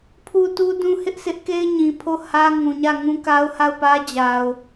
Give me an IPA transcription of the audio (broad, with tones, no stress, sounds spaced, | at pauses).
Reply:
pʰ u˦˨ t u˦ d ũ˦ h ɪ˦ ʔ s ɪ˦ ʔ k e˦ ɪ̯ ɲ ĩ˨ pʰ o˦˨ h ä˦ ŋ ũ˨ ɲ ä˦˨ ŋ ũ˦ k a˦ ʊ̯ h a˦˨ ʊ̯ p ä˦ d͡ʑ a˨ ʊ̯